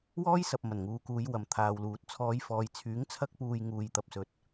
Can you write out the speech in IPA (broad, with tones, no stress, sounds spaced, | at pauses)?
w ɔː˥ j s ɐ˨ p̚ m ɐ˨˩ n ŋ uː˨ k uː˨˧ j w ɐ˨ m t̪ʰ aː˨ w l uː˨ t̚ t͡sʰ ɔː˨˧ j f ɔː˨ j t͡sʰ yː˨˥ ŋ t͡sʰ ɐ˥ k̚ p uː˧ j ŋ uː˧ j t̪ ɐ˧ p̚ s ɵ˨ t̚